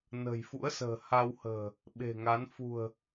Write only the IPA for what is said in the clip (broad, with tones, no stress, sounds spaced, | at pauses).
n ə̤˨˩ j f ṵ˧˥ ə̯ s ə̤ː˨˩ h a˧ w h ə̤ː˨˩ | ɓ e̤˨˩ ŋ a˨˦ n f ṳ˨˩ ə̯